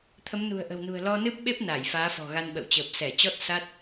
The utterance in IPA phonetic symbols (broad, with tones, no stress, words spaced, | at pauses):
t̪ʰə˨˦mnṳ˨˩ə̯ʔə̤˨˩wnṳ˨˩ə̯ lɔ˧nɨ˦˥p̚ɓe˦˥p̚ naː˧˩jfaː˨˦fɔ̤˨˩ɣa˧n ɓə̰˧˨wt͡ɕəː˨˩p̚ sɛ˧˩t͡ɕɔ˦˥t̚ sa˦˥t̚